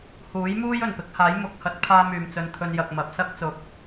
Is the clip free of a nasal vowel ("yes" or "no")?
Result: yes